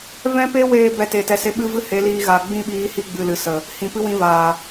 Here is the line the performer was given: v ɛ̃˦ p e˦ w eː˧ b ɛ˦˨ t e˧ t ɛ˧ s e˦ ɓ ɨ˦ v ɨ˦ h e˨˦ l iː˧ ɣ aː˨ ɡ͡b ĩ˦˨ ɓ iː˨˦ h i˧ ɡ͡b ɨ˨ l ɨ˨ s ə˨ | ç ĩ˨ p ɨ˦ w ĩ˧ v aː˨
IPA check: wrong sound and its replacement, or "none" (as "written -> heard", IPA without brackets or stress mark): ç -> h